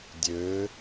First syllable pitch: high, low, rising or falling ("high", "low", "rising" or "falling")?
rising